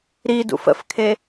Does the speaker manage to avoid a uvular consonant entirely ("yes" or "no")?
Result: yes